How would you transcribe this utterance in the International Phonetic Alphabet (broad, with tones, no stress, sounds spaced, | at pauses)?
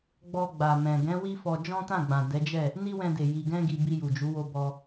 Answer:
ɡ͡b ɔ˧ ɡ͡b a˨ m ɛ̃˨ ɡ ɛ̃˨˦ w i˦ f ɔ˧ d͡ʒ ɔ̃˦ t ã˦˨ ɡ͡b ã˨ d ɛ˨˦ d͡ʒ ɛ˦˨ | n i˦ w ɛ̃˧ d e˨ j i˨ ɡ ɛ̃˧ ɡ i˨ b i˧ j u˨ d͡ʒ u˨˦ w o˧ b ɔ˧